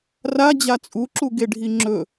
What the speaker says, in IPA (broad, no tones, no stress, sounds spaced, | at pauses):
r a d͡ʑ a t͡sʼ u ǁ u ɡ e ɖʱ i ŋ͡ǁ ɵ